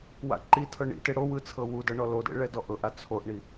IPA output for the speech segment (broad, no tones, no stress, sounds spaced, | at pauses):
w a̰ ǃ i tʰ ɤ ɳ ḭ t e ɽ o w ɯ t͡sʰ ɤ w u d ɤ ɳ ɔ l o d ḛ ɭ ɛ d ɔ ʔ ɤ ʔ a t͡sʰ o ʔ ɳ i